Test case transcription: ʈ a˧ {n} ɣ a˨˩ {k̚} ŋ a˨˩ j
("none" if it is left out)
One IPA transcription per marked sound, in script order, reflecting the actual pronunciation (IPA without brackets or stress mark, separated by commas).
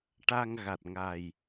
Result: ŋ, t̚